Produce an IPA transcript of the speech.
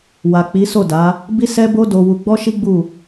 w a˨ k͡p i˨˦ s o˦˨ d a˨˦ | b i˦ s ɛ˦ b o˦ d o˧ w u˧ ɡ͡b ɔ˦ ʃ i˦ ɡ͡b u˦˨

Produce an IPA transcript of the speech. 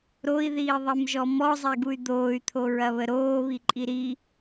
ɾ o i̯ ð iː ðˤ e m ʒ ɔ m ɔ zˤ e ɡ u y̯ d̪ oː y̯ t̪ʰ o ɹ ɐ β ə ɾ oː β i ǃʼ i ɾ i

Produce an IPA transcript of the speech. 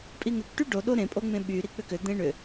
pʼ i ŋ ʏ k ʈ y ɖ o ɗ o ɾ ẽ pʼ o ŋ͡m ẽ ɓ y ɾ i k͡p ʏ k ʏ d̪ ẽ ɳ ʏ

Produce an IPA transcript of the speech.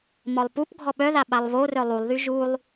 m ɔ lˠ p u p ɡʱ ɔ ɓ œ ð a ɓ a lˠ β o r œ lˠ u lˠ ð y ʒ u lˠ

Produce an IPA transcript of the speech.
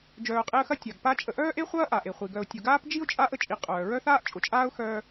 d͡ʒ œː˨ qʼ e˦ ə̯ x ɐ˥ tʲ a˩ ɡ p a˦ t͡ʃʼ ə˨ ʔ œː˥ ʔ e˥ χʷ ɐː˥ ʔ a˩ ʔ e˩ χʷ i˩ ɡ œ˨ ʊ̯ tʲ ʊ˨ ɡ aː˥ p d͡ʒ i˥ ʊ̯ t͡ʃʼ a˥ ʔ ə˦ t͡ʃʼ i˨ qʼ œː˩ ɹ œ˥ θ aː˥ ʔ t͡ʃʼ ʊ˨ t͡ʃʼ aː˥ ʊ̯ x œː˦

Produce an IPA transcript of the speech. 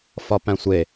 f ɒ p æ̃ sʷ e

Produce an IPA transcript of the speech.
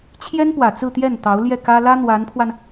t͡ɕʰ j ɛ˥ n p w ä˨˩ t͡s ɹ̩˥˧ t̪ j ɛ˥˩ n t̪ ɑ˧˥ ʊ̯ l j ɛ˥˩ k ä˥ l ä˥ n̪ w a˧˥ n pʰ w a˧ n

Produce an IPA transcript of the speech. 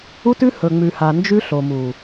u˦ t ʉ˦ h ɵ˨ ŋ͡m ʉ˨ h a˨ n d͡ʒ ʉ˦ ɬ o˨ m u˨

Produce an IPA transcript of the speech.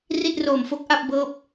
r i˥˩ t̚ r oː˨˩ m f o˦˥ k̚ ʔ a˥˩ p̚ b ɤː˥˩ p̚

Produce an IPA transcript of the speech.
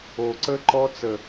o˨ ǀ ə˦ ǃ ɔ˦ t͡s ə˨

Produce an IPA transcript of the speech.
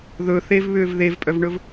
ð ɵ θ e v β ʏː v ð e v pʼ œ v ɳ ɵ v

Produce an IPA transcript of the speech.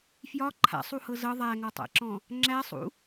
f j ɒ ǃʰ a̰ sˤ u h ɤ z ɤ ðˤ æ ŋ ɔ tˤ æ̰ ǁ ɔ̃ | ŋ͡ǁ æ sˤ ṵ

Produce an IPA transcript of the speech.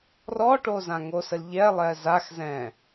r ɔ ʈ o z ã ŋ o s ə l ʎ ɛ lˠ ɛ z a x z ɛ̃

